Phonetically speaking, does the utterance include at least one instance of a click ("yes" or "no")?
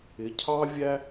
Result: no